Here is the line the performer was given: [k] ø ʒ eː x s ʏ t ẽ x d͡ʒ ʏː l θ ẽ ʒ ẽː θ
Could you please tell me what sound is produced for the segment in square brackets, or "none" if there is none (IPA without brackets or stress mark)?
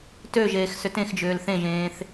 t